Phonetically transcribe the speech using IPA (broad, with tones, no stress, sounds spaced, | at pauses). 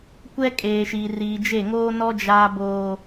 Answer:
kʷ ɛ˦ kʼ eː˨ ʃ i˨ r iː˨ d͡ʒ e˦˨ ŋ oː˦ n ɔ˦ d͡ʒ aː˦ b oː˦